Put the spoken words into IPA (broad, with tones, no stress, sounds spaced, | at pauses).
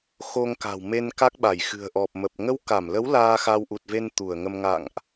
x o˧ ŋ k a̤˨˩ w m e˧ n k a˦˥ k̚ ɓ a˧˩ j x ɨ̤˨˩ ə̯ ʔ ɔ˨˩ p̚ m ə˨˩ p̚ ŋ ə˧ w k a˧˩ m l ə˨˦ w l aː˧ x a˧ w ʔ u˨˩ t̚ v e˧ n t̪ u˧˩ ə̯ ŋ ə˧ m ŋ a̰˧˨ ŋ ʔ